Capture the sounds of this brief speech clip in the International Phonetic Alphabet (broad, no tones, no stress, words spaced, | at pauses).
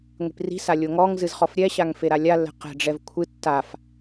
ŋʷi̤pri̤sa lʲoŋɔŋzɨz χɔfɾʲɛɕaŋ feɾalʲalːɛ̤ qɛ̤ɖ͡ʐɛv kʷʰɨ tːaf